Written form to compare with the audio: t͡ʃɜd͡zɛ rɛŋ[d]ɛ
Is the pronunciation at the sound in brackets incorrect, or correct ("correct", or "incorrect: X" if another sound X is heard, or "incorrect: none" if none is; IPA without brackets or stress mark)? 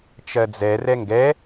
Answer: incorrect: ɡ